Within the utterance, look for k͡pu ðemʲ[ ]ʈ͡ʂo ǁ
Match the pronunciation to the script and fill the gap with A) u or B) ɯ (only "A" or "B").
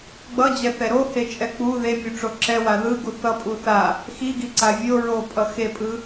A